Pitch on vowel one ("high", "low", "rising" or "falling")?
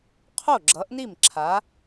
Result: falling